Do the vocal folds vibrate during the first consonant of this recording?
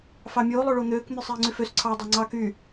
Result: no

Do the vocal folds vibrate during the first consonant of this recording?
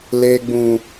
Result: yes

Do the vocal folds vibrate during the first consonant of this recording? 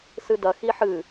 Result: no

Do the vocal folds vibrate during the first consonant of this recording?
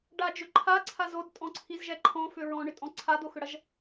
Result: yes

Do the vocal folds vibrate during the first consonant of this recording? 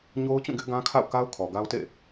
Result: yes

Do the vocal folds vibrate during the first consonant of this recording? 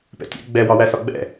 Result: no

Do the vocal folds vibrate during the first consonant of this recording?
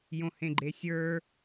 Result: yes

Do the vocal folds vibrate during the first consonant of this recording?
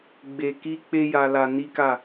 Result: yes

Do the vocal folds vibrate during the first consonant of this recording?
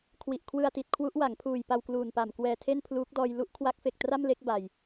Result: no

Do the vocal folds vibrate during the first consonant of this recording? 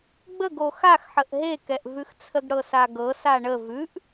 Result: yes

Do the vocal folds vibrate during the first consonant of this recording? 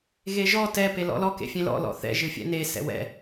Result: yes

